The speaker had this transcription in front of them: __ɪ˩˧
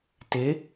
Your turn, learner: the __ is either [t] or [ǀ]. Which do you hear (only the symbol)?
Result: t